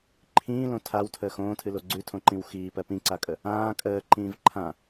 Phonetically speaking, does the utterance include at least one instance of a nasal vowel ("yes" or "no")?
yes